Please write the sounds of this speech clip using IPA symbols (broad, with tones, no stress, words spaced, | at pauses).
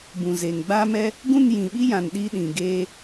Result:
bũ˨zeː˨ŋ ɡ͡baː˦mɛ˦ | ɡũ˦˨njĩ˨ɓi˦jã˨n ɗi˦ɗĩ˨ ɡeː˦